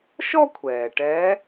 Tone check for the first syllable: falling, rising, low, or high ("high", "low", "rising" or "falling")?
high